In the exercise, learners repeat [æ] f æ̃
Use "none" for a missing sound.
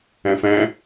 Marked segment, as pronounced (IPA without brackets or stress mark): æ̃